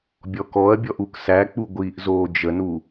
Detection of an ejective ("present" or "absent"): absent